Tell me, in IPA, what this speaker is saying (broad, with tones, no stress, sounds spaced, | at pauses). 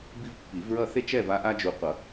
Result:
b i˦ v pː i˨˩˦ v ɹ ʌ˥˨ θ e˦ t͡ʃ ɛ˥˨ v a˦ ʔ a˦ d͡ʒ u˨ qʷ ʌ˨˩˦